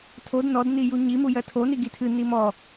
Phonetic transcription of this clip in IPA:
tʰ o d n ɔ d n i j u ɲ i m u j ɜ tʰ o n i ɡ i tʰ ɨ n i m ɔ

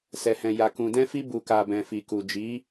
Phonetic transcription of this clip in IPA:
s ɛ˨ h ɛ̃˨ j a˨ k ũ˨ d ɛ̃˧ f i˧ b u˨ k a˨ b ɛ̃˨ f i˨ k u˨ d͡ʒ i˨˦

